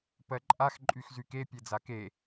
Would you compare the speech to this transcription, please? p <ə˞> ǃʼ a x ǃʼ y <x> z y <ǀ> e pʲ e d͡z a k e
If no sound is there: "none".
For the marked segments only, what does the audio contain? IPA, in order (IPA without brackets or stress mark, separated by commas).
ɜ, x, k